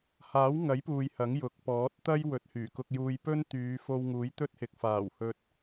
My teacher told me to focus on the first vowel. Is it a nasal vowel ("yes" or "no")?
no